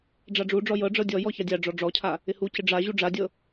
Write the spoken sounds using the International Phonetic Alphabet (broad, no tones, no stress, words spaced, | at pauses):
ɖ͡ʐaɖ͡ʐuɖ͡ʐɔ jɤɖ͡ʐɤ dʲɔjɔ çadʲaɖ͡ʐɔ ɖ͡ʐɔcʰa | ɪhucɪ ɖ͡ʐa ʑuɖ͡ʐadʲɤ